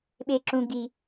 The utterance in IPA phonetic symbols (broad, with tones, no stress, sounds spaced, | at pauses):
ɓ e˦ ǁ ũ˦ ɡ i˦